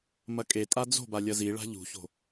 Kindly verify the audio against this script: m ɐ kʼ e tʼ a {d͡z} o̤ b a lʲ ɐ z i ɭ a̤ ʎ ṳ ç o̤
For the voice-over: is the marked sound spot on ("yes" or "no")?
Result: yes